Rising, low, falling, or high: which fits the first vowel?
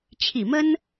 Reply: low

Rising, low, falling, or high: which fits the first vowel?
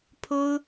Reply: high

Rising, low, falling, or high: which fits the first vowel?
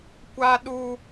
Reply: high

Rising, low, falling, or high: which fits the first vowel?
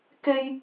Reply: high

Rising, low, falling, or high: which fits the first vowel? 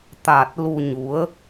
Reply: low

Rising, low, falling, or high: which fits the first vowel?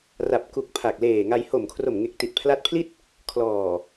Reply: low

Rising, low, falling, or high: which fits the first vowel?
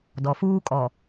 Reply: low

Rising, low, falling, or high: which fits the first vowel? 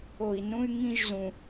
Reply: low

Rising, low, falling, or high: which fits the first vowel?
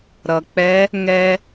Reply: low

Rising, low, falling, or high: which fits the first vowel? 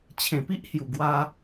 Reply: low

